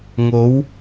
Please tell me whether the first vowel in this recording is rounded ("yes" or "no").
yes